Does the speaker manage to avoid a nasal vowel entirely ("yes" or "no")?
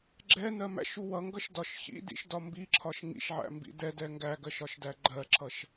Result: yes